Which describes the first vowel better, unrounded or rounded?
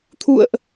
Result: rounded